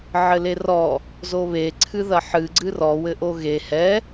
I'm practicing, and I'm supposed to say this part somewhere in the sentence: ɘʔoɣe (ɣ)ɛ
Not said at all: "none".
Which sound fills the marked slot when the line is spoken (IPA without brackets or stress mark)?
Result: h